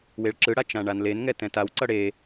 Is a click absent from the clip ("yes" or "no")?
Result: no